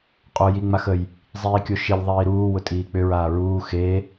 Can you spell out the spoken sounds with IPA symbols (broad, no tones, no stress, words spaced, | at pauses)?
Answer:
qʼo jiŋ͡maxəj | zˤiːkʲoʃilʲ ðˤiːɾuː wʊtʼiːk͡pʏ ɹaːɹuː xe